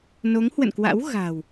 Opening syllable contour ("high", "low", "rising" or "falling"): rising